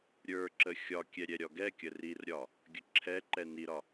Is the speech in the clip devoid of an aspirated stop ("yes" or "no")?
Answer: no